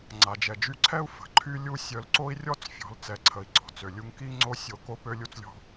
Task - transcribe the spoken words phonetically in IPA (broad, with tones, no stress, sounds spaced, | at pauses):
ŋ͡ǀ a˨ d͡ʒ ɛ˨ d͡ʒ y˧ ǀʰ ɛ˦ u̯ f ə̤˨ ǃʰ y˦ lʲ u˦ sʲ œ˧ l ǀ o˦ i̯ rʲ ɔ˦ t͡s fʲ ɔ̤˨˦ l t͡s ɛ˨ ǀʰ ə˨ i̯ ǀ ɔ̤˨ t͡s ø˨ lʲ u˧ ŋ k i˦ ŋ͡ǀ o˦ sʲ o˧ k o˦ p ø˦ lʲ u˦ t͡s lʲ ɔ̤˦